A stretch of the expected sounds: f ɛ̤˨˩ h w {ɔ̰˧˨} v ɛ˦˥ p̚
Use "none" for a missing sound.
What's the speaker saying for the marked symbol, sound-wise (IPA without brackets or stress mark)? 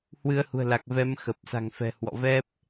ɔ̰˧˨